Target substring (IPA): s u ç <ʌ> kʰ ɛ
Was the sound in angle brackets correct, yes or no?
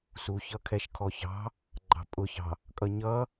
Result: yes